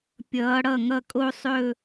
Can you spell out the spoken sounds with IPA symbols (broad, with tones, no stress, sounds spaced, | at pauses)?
pʲ ʌː˨˦ ɽ ʌ˥˩ ŋ ʌ˥˧ kʼ o˥ sˤ ɵ˥˧